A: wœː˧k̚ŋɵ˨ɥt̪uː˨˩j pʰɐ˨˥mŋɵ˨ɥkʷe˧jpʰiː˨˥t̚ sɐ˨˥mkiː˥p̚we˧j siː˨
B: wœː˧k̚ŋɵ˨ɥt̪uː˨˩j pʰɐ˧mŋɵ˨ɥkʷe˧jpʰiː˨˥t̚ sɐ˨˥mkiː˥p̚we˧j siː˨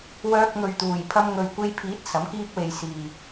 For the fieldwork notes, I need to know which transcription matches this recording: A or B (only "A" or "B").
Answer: B